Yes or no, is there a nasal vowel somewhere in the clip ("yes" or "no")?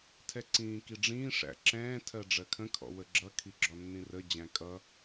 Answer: yes